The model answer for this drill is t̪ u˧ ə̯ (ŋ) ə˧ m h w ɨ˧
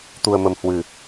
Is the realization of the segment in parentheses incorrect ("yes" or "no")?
yes